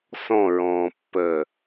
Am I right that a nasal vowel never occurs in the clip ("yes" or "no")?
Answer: no